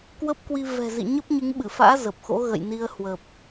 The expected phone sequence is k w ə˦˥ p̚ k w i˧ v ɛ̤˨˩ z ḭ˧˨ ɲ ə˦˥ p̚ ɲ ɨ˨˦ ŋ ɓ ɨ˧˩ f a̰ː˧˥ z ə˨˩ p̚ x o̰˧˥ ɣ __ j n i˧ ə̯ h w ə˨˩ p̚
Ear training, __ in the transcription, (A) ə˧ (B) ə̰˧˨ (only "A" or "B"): B